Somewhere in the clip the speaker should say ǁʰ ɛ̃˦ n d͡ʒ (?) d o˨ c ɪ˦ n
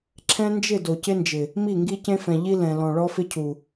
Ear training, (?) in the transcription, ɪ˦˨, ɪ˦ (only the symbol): ɪ˦˨